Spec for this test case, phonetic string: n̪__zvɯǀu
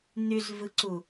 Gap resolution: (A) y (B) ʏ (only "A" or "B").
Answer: A